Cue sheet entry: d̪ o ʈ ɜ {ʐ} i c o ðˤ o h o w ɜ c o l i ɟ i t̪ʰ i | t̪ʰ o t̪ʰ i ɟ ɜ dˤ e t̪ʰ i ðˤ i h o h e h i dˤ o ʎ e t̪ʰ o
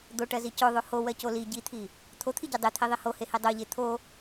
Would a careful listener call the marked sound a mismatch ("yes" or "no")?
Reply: yes